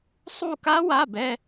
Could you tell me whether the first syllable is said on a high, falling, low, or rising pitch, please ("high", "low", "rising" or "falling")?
falling